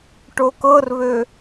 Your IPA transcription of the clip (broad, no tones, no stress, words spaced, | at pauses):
ʈokɤrβø